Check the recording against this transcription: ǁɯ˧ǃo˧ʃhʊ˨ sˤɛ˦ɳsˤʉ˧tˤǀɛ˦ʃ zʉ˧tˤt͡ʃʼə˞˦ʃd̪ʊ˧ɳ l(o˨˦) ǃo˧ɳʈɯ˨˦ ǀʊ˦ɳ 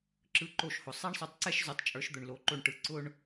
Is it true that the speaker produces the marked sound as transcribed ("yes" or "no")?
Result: yes